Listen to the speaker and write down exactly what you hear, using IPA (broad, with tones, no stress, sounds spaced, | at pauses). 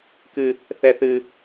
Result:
k ɨ˦ | θ ɛ˦ θ ɨ˦